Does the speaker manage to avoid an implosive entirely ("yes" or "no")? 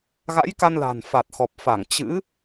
yes